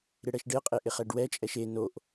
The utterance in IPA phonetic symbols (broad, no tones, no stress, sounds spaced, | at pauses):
ɾ ɪ ɽ ɛ ʃ ɖ ɪ ə̯ qʼ e ʔ ɪ χ ɛ ɖ w ɛ t͡ʃʼ ɛ ʃ e n o ʔ